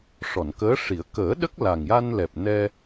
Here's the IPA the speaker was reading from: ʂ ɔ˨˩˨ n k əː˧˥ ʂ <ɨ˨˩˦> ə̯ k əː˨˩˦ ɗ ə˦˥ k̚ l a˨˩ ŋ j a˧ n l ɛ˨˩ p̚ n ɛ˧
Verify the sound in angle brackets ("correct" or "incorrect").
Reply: incorrect